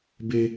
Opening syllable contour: high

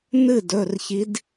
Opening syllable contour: falling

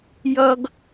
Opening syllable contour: high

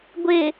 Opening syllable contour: low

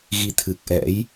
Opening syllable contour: rising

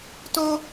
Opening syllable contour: high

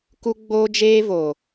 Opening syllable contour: high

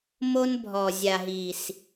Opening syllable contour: high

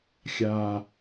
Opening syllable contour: low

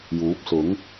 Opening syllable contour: rising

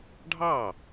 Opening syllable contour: falling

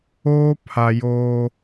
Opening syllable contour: high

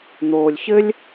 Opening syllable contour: low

